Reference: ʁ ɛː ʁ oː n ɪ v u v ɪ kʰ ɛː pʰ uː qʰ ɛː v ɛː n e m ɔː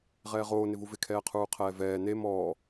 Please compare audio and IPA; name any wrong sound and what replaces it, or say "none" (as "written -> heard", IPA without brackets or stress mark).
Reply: pʰ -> qʰ